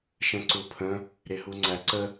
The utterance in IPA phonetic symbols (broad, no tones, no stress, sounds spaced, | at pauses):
ʃ ə̃ ǀ u pʰ ə̃ | ɾ ɪ ɦ u ŋ͡ǀ æ ǀ ə